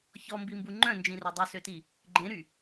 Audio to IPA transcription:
ç ɔ m b i m b u ŋ͡ǃ œ̃ n d͡ʒ ĩ r œ dˤ u s ø t i | ɡ͡ǃ ẽ ɾ y

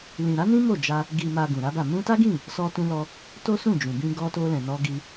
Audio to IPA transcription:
l ĩ˨ ɾ a˨˦ n ĩ˦ m o˦˨ d͡ʒ a˧ | ɡ i˨ m a˨ ɡ ũ˨ ɾ a˨˦ b a˦˨ m ũ˧ t a˦ ɡ ĩ˦˨ | s ɔ˧ t ũ˧ l ɔ˧ | t o˦ s ũ˦˨ d͡ʒ ũ˨ b ĩ˧ ɡ ɔ˧ t o˧ l ɛ̃˨ n ɔ˧ ɡ i˧

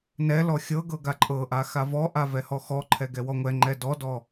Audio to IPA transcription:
n ɛ l ɔ xʲ ɤ ɡ ɤ ɡ a ǃʼ ɤ ʔ a x a v ɔ ʔ a v ɛ h ɔ x ɔ ǃʰ ɛ ɡ ɛ w ɔ ŋʷ ɛ ŋ͡ǃ ɛ d ɔ d ɔ

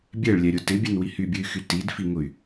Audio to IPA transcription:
bʲ ɛ ɭ lʲ ɛ ɾʲ ʊ t ɪ bʲ ɛ n w i h y bʲ ɨ y̯ x y t i d f i ŋ ʊ y̯

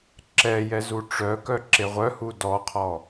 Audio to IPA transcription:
ǁ ɛ j ɛ z u ʈ͡ʂ œ k œ ǁ e ʁʷ œ h u d ɔ qʰ ɔ

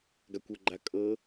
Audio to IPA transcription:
ɡ a kʷ ʊ ɡ͡ǃ a kʼ ɤ

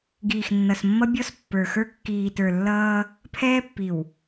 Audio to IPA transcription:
ɡ iː˨ x nː ʌ˨ s mː ʌ˦ bʲ ɔ˦ s pː ə˞˨ x ə˞˦ kː iː˨ t ə˞˨ lː ʌː˦ | pʰ ɛː˦ pː i˨ w

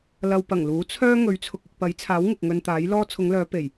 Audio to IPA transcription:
l ɐ˧ w p ɐ˨˩ ŋ l uː˨˥ t͡sʰ œː˥ ŋ ɵ˨˥ ɥ t͡sʰ ʊ˨ k̚ ɪ˧ k̚ p ɐ˨˥ j t͡sʰ aː˨˥ w ŋ ɪ˨ k̚ ŋ ɵ˧ n t̪ aː˨˥ j l ɔː˥ t͡sʰ ʊ˨˧ ŋ l œː˨˧ p e˨˩ j

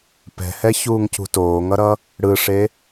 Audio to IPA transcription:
p ɛ̤ h ɛ ç uː ŋ c ṳ t oː ŋ ʌ ɾ ʌ | ɽ ɯ ʂ e

